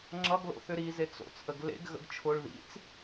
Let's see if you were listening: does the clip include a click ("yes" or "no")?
yes